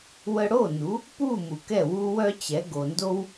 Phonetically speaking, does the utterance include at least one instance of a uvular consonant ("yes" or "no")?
no